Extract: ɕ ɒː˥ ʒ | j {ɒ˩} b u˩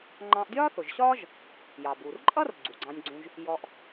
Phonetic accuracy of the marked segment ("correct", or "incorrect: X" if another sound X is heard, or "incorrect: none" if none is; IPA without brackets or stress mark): incorrect: ɑ˩